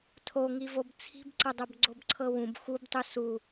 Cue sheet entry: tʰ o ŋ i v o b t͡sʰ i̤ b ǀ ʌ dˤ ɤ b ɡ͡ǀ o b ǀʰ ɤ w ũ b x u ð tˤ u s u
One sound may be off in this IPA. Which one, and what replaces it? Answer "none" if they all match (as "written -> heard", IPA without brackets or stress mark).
ð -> b